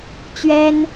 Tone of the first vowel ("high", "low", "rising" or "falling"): high